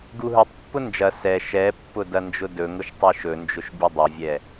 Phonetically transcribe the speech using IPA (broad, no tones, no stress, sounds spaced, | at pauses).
ɡ u ɦ ɵ tˤ pː ʊ n d͡ʒ ɐ s ɛ ʃ ɛ pː ʊ d ɐ n d͡ʒ ʊ d ɵ ŋ ʊ ʃ tˤ ɘ ʃ ɵ n d͡ʒ ʊ ʃ bʲ ɵ dˤ ɵ vʲ ɛ